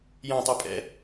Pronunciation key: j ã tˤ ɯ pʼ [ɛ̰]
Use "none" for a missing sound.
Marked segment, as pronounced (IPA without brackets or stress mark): ɛ̰